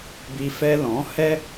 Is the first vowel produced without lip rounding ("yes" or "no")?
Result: yes